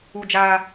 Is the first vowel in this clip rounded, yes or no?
yes